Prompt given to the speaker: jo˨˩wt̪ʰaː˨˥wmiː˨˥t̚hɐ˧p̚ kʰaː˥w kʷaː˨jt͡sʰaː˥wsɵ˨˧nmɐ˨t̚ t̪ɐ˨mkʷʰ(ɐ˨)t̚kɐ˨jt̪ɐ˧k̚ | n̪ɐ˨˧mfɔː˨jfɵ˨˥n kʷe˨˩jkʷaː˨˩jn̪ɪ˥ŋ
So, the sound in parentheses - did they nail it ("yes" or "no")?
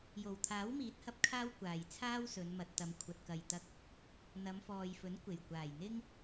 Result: yes